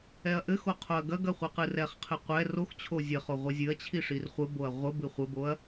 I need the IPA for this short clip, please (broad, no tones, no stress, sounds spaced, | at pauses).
ɛ ɐ̯ ʔ ɘ x o qʰ o ɐ̯ ɡ ɐ ɡ ɐ χʷ ɨ q ɨ r ɛ χ qʰ ɨ qʷ ɛ r o x t͡ɕʰ o zʲ ɘ χ o ʁʷ i zʲ ɨ ɐ̯ t͡ɕʰ i ʂ i r χʷ ɘ b o ɐ̯ ʁʷ ɘ b ɨ χʷ ɘ b o ɐ̯